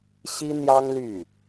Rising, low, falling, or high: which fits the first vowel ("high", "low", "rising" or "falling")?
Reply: high